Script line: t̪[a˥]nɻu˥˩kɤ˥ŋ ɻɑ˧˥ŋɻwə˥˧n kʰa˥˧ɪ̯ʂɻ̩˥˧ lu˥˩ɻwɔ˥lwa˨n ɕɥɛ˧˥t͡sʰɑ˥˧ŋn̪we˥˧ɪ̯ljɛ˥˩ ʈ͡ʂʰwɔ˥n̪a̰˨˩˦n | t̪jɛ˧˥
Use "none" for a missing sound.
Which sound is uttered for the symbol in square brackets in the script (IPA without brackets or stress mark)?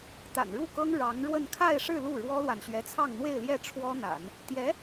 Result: a̰˨˩